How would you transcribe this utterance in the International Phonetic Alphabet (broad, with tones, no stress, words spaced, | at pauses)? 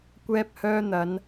kʷɛː˧p̚hœː˧ n̪ɐ˨˧n